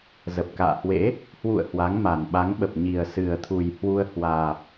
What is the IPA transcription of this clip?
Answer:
z ə˨˩ p̚ k a̰ː˧˨ h w ḛ˧˥ | h w ṵ˧˨ ə̯ h w a˨˦ ŋ m a˨˩ n ɓ a˨˦ ŋ ɓ ə˨˩ p̚ ɲ i˨˩ ə̯ s ɨ˨˩ ə̯ t̪ʰ u˨˩ j h w u˧ ə̯ h w aː˨˩ p̚

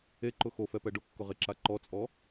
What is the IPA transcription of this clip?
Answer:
e ǃ ʊ x o f ɛ p ɛ ɖ ʊ kː ʊ ʁ e ǁ a ǃ ɔ t͡sʼ ɔ

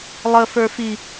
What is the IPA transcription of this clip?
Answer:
lˠ ə f ə˞ f i

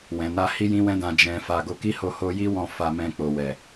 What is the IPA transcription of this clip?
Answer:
w ɛ̃˨ n a˧ h i˦ j ĩ˦ w ɛ̃˦ d ã˧ d͡ʒ ɛ̃˧ f a˧ ɡ o˧ k i˦ h o˧ h o˦ j i˦ w ɔ̃˦˨ f a˧ m ɛ̃˧ k͡p o˨ w ɛ˨

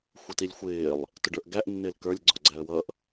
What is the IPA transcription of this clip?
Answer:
xʷ ʌ t i lʲ xʷ ɪː lˠ | t ʊ ɖ ə˞ ʔ ɡ æ ʔ nː ɪː l k ə˞ lʲ ɡ͡ǀ ɔ̤ ɡ͡ǀ æ ə̯ w ʌ ʔ

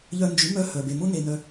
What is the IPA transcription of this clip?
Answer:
ʎ œ˧ n d͡ʒ y˨˦ m œ˦ h œ˨ b e˨ m ʊ˦ n e˧ n œ˧

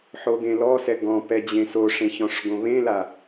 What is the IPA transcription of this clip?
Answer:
ħ o ɡ ẽ l ɔ s ɛ ɡ ɔ̃ p ɛ d͡ʑ ẽ s o ʂ ẽ ç ɔ̃ ʂ ɡ õ β ẽ l a

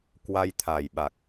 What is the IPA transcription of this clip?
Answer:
k w a˧ j t̪ʰ a˨˩ j ɓ a˨˩ k̚

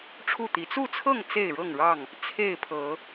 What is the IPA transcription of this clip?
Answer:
ʈ͡ʂʰ u˥˨ t̪ i˨˦ t͡s u˥˨ t͡sʰ ɤ˥˨ ŋ t͡s e˥˨ ɪ̯ ɻ ɤ˥˨ ŋ ɻ ɑ˥˨ ŋ | t͡sʰ e˥˨ ɪ̯ pʰ ɤ˨˦

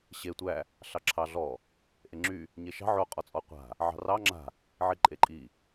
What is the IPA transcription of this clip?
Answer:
ɕ e tʷ æ | ɬ ɑ ǁʰ ɑ ɮ ɔ | ʔ e ŋ͡ǁ y | ɲ e ʃ ɑ̤ ʕ o qʼ ɔ t͡sʼ ɔ qʷ a̤ | ʕ ɑ̤ r ɑ ŋ͡ǁ a̤ | ʕ i ǃʼ e ǃʼ i

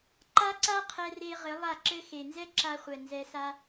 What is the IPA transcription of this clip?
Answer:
ǃ a˦ ǀ a˦ qʰ ɛ˧ r e˧ ʁ ɘ˨˦ lˠ a˦˨ ǁ ɘ˦ x e˨ n z ɛ˦ ǁ a˧ χʷ ɛ˨ n z ɛ˧ s a˦

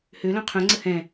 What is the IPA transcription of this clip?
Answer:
h ø l œ̃ qʰ œ̃ ŋ͡ǀ ə h ɛ̃

